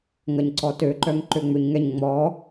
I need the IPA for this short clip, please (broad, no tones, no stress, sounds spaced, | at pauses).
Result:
ŋ ɐ ɲ ǀ ɔ t ø ǃ œ ŋ ǃ ø ŋ͡m ʏ ɲ ŋ ɛ ɲ ŋ͡m ɔ